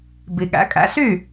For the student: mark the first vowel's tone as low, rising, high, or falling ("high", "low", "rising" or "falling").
low